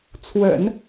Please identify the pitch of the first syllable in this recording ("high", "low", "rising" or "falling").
low